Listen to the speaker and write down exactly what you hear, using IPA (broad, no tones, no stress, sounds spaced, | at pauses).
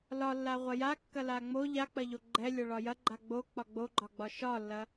l ɒ lː a ʁʷ ɐ j a kː ɐ l a ŋ͡m o ʎ a k͡p ɐ ʎ o ɡ͡ǃ ɛ lʲ ɒ ɭ ɒ j ɐ ɡ͡ǃ a ɡ͡b o k͡p ɒ ɡ͡b o ɡ͡ǃ ɒ ɡ͡b ɒ ʃ ɒ lː ɐ